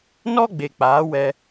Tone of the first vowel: high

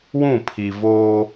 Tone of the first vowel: falling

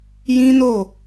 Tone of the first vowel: high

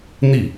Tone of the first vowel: falling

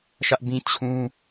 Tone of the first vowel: high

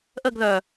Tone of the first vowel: falling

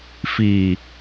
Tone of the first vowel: low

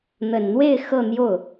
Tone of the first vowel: low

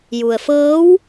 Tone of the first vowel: low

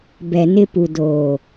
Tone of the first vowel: low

